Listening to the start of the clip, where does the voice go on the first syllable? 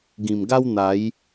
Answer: low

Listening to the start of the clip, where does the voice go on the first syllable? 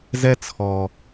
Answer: high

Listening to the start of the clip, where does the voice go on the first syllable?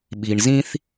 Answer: low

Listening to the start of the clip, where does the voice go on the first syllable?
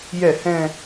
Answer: falling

